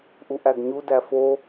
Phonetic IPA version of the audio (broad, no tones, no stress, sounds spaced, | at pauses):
ʔ u ʔ æ ɡ ɲ u d æ f o